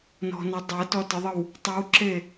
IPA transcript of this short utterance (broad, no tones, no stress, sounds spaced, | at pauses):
n ɔ̤ n ɐ dˤ ɐ t ɔ t ə ðˤ ə w | tˤ ʉ w ǁ e